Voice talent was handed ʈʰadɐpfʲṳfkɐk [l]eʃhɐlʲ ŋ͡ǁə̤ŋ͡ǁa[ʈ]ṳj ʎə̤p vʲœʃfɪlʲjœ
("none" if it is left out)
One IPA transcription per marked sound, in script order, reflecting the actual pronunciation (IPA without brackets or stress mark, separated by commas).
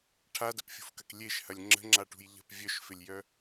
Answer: lʲ, ʈ